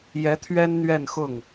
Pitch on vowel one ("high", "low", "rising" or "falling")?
rising